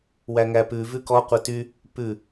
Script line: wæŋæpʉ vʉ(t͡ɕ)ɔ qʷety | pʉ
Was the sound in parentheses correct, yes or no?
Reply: no